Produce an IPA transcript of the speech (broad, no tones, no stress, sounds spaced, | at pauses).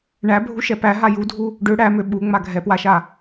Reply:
ɳ æ bʱ u ʃ ɛ p æ ɦ a j u dʱ u | ɖ ø ɽ æ m ø ɓ u ŋ͡m a ɡʱ ɛ p w a ʃ a